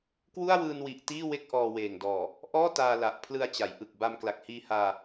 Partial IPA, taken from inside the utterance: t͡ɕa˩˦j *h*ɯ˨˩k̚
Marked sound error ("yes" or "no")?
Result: yes